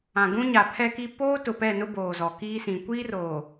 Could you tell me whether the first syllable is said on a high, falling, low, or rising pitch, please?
low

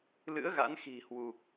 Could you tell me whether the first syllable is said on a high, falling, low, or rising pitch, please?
rising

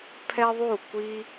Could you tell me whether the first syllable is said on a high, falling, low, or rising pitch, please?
high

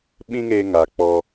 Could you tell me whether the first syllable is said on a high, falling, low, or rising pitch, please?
high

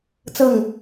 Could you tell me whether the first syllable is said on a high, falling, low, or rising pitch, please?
falling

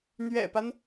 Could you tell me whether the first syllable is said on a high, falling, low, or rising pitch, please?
low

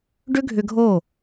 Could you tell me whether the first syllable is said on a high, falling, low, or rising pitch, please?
high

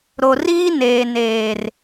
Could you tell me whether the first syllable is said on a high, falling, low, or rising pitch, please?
low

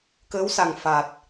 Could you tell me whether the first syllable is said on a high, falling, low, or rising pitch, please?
rising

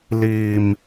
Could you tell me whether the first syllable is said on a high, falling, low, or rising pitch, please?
low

